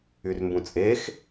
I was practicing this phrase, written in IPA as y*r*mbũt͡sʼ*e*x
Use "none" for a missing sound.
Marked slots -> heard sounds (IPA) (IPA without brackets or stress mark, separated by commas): r, e